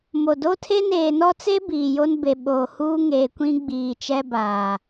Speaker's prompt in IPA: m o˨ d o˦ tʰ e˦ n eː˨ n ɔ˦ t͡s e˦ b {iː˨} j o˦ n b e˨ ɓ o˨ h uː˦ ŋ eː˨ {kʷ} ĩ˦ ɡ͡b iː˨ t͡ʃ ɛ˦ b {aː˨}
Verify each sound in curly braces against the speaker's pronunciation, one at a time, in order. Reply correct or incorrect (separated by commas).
correct, correct, correct